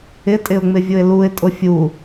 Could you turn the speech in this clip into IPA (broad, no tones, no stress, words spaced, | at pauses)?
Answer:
ɪtʼɪʊ̯ ŋ͡mɪvʲʊɪ̯luɪ̯ tʼʊfʲu